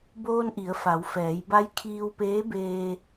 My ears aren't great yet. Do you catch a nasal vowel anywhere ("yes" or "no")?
no